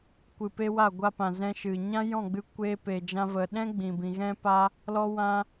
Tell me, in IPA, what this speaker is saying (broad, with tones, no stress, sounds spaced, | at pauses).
kʷ ɨ˨ p e˧ w a˦˨ ɡʷ a˧ p ã˨ z ɛ̃˧ ʃ ɨ˨ ɲ ã˦ j ɔ̃˦˨ ɡ͡b ɨ˧ kʷ eː˧ p e˨ d͡ʒ ã˧ v ə˨ ɗ ɛ̃˦ ɡ͡b ĩ˨ b ĩ˨ ɣ ɛ̃˦ p a˦ | l ɔ˦ w ã˦